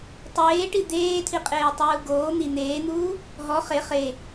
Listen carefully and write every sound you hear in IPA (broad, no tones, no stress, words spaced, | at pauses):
tˤeːʈi d̪eːtʰiqʼeːtˤuː ɡoː n̪i n̪eːn̪uː | ɦɔ χe χe